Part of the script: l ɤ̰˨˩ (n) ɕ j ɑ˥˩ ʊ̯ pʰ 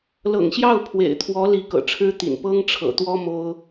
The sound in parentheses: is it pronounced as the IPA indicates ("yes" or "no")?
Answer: no